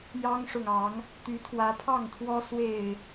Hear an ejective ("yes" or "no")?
no